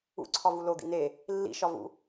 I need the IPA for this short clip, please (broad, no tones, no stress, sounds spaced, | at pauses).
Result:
ṵ ǀʰ ɒ v u l o d̪ ḭ n e | lː ḭ ʃ ɒ v ṵ